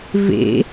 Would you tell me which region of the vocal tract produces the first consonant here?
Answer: lips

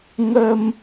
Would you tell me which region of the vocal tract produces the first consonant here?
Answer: velum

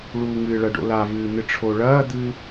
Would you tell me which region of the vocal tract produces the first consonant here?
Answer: retroflex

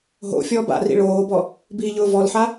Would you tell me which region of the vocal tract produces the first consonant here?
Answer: throat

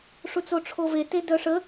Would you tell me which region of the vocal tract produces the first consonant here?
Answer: retroflex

